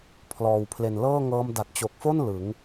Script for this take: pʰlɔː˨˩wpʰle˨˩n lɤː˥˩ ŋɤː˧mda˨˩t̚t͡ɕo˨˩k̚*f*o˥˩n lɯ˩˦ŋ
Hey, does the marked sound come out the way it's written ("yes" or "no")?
yes